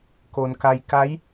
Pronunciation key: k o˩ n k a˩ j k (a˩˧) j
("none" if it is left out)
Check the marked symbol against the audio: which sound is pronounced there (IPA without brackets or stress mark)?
a˧˥